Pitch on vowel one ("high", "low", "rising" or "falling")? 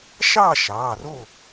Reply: falling